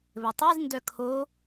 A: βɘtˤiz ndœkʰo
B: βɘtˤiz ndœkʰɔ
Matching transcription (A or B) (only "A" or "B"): A